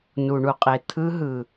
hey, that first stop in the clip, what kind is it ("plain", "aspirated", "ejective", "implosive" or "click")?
ejective